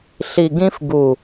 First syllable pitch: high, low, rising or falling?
low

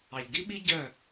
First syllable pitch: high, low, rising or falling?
low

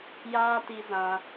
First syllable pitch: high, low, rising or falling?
high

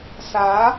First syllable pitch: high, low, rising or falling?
rising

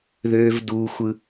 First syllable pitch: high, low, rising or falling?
high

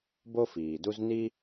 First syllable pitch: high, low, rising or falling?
high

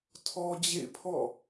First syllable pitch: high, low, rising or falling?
high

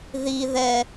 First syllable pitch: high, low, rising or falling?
high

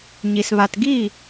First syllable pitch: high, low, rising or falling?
low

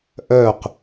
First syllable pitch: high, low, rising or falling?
falling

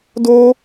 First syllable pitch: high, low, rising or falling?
high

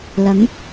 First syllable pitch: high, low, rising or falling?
rising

